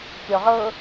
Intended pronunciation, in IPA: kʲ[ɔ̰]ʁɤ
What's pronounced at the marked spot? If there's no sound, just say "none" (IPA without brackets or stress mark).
ɔ